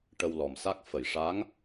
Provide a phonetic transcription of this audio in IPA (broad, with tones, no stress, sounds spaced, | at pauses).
ʈ ə˧ w l ɔ˨˩ m s a˦˥ k̚ f ə˨˩˨ j ʂ a˧˥ ŋ